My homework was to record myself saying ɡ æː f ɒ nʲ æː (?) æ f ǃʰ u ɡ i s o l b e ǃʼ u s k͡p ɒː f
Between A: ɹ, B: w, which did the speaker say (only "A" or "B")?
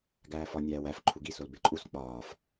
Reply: B